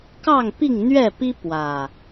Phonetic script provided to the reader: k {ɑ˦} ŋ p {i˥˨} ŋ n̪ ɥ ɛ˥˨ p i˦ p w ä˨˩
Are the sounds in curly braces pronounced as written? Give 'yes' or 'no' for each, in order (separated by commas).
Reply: no, yes